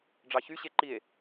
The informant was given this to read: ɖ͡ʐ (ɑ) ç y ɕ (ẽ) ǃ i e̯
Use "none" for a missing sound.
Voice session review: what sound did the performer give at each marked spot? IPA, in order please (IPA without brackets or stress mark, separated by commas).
ɑ, e